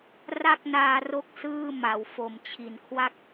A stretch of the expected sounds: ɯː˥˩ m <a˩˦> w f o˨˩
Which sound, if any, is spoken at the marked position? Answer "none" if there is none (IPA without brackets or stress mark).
a˩˦